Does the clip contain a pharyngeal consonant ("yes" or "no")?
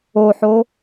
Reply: yes